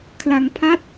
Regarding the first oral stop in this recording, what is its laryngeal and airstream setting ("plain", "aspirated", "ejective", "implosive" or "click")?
aspirated